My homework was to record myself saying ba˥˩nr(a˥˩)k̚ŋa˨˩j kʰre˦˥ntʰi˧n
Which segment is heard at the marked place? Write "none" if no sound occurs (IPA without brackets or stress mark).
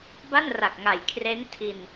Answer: a˨˩